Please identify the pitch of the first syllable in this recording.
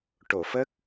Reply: low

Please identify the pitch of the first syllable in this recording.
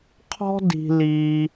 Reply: high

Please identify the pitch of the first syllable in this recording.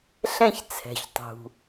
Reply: falling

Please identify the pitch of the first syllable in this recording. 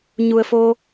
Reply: low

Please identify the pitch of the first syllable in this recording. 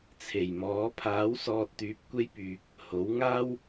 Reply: low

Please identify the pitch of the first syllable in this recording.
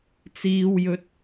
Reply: low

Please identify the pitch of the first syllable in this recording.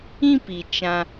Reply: high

